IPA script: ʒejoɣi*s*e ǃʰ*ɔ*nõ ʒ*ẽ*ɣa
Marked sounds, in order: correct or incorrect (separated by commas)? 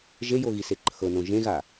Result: correct, incorrect, correct